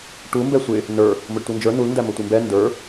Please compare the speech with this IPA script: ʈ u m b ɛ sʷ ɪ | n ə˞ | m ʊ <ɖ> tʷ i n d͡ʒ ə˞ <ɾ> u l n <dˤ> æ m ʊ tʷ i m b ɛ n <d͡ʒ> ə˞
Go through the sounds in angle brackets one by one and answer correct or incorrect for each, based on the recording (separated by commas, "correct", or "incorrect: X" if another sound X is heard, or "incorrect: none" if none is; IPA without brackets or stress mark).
correct, incorrect: n, incorrect: d, incorrect: d